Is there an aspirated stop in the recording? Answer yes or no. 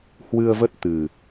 no